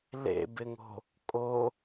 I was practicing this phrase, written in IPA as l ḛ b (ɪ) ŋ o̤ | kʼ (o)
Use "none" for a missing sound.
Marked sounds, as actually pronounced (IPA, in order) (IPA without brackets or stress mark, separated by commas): ɪ, o